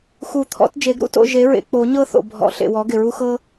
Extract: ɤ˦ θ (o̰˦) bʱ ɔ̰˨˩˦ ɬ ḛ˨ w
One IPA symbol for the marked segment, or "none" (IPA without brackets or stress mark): o̰˨